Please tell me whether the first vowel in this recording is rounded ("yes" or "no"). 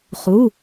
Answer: yes